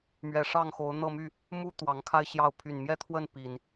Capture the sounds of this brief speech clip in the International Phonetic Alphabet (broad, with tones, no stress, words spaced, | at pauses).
mɥɛ˨˩ʂɑ˥˨ŋxo˨˦ʊ̯ n̪ɤ˥˨my˥˨ | mu˦ t̪wɑ˨˦ŋkʰa˦ɪ̯ɕjɑ˥˨ʊ̯ pʰy˨˩nmjɛ˥˨t̪ʰwə˥˨n pi˨˩n